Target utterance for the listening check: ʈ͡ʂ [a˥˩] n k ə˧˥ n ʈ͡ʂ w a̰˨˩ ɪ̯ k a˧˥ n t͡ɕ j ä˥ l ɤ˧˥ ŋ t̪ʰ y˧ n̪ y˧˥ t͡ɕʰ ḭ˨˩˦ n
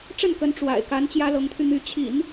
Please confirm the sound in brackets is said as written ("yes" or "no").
no